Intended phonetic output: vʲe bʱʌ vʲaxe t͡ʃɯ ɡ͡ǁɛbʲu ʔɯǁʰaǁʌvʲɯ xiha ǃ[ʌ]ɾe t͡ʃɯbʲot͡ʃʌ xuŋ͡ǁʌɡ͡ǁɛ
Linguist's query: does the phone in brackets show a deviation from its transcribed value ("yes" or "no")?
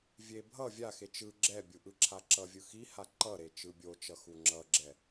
no